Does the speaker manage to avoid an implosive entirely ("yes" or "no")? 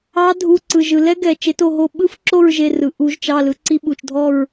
no